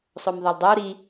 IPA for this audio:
sˤ o m ðˤ o lˠ dˤ o w ɾ i

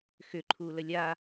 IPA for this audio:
x ʏ ǃʰ uː l ə lʲ a

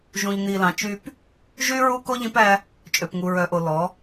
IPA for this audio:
ʒ ũ˨ ʎ n̪ i˨ l ɑ̃˨ t͡ʃ y˦ p | ʒ y˦ ɹ u˦ k o˦ ʎ ĩ˦ p æ˦ | t͡ʃʼ ø˨ p ŋ u˨ ɹ œ˨ ʔ o˨ l ɔ˨˦

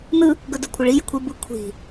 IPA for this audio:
n ɯ | ɡ ɵ d ɵ kʷʰ ə ɭ i j ə̤ kʷʰ i b ɯ kʷʰ i̤

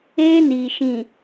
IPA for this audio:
eː˦ n iː˨ ʃ ĩ˨

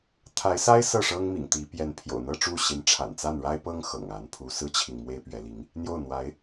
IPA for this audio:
t̪ʰ a˧˥ ɪ̯ s a˥ ɪ̯ s ɤ˥˩ ʂ ɤ˥ ŋ m ḭ˨˩ ŋ t̪ i˧˥ p j ɛ˧˥ n pʰ j o̰˨˩ ʊ̯ n̪ ɤ˥˧ ʈ͡ʂ u˥˩ ɕ i˧˥ n ʈ͡ʂʰ a̰˨˩ n t͡s a˥˩ n ɻ a˥ ɪ̯ p ɤ˥ ŋ x ɤ̰˨˩ ŋ a˧˥ n pʰ u˧˥ s ɹ̩˥ t͡ɕʰ i˨ ŋ m w e˥ ɪ̯ p ɥ ɛ˧˥ l i˧˥ ŋ | n̪ j o˥˩ ʊ̯ n̪ w a˧˥ ɪ̯

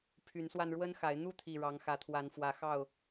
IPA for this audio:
pʰ y˨˦ n s w a˧ n ɻ w ə˦ n x a˨˦ ɪ̯ n̪ u˥˨ t̪ʰ i˨˩ ɻ ɑ˨˦ ŋ x ä˨˦ t̪ʰ w a˨˦ n f w ä˨˦ x ɑ˥˨ ʊ̯

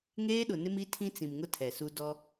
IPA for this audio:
ŋ eː˦ ɗ ʊ˨ n ɪ˦ m i˦ tʰ ĩ˦ t͡s ĩ˨ m ŋ ʊ˦ tʰ ɛ˨ s u˦ d ɔ˦

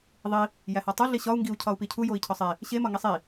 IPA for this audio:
ðˤ i | j æ h ɒ tˤ u ɮ i ɕ ɒ u̯ ŋ ɡ i u̯ cʰ ɒ u̯ p i cʰ u j o i̯ cʰ ɒ sˤ e | ɕ e m ɒ ŋ i sˤ i

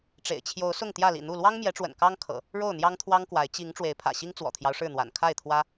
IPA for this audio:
ʈ͡ʂ ḛ˨˩ ɪ̯ t͡ɕʰ j o˨˦ ʊ̯ s ʊ˥˨ ŋ t̪ j ä˥˨ l ḭ˨˩ n̪ u˥˨ l w ɑ˦ ŋ m j ɛ˨˦ ʈ͡ʂ w ə̰˨˩ n k ɑ˦ ŋ kʰ ɤ̰˨˩ | ɻ o˥˨ ʊ̯ n̪ j ɑ˦ ŋ t̪ʰ w ɑ˦ ŋ k w a˨˦ ɪ̯ t͡ɕ i˨˦ ŋ ʈ͡ʂ w e˨˦ ɪ̯ pʰ ä̰˨˩ ɕ i˦ ŋ t͡s w ɔ̰˨˩ t̪ʰ j ɑ˦ ʊ̯ ʂ ɻ̩˥˨ n̪ w a̰˨˩ n kʰ a˥˨ ɪ̯ t̪ʰ w ä˦

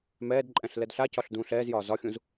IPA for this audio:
m ɛː d ǃʼ ɛ̃ ɬ l ɛ d ɬ a c ɒ ɬ d ũː ɬ ɛː z j ɒː z ɒ xʲ ũ z

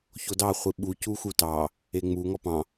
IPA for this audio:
ç o d ɑ χʷ i ɓ u c u x u t ɑ | e ŋ͡m u ŋ ɔ p ɑ̃

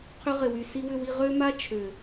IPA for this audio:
qʰ ʏ˧ ʁ ɪ˨ w y˨ s i˧ w ʏ˧ w i˧ ʁ ø˦ m a˦ t͡ʃʰ ø˨

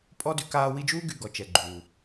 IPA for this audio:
pʼ ɔ˥ d y˦ k aː˦ w i˦ d͡ʒ uː˥ ɡ y˨ ɡ ɔ˩ t͡ʃ ɛ˩ ɡ͡ǃ uː˩

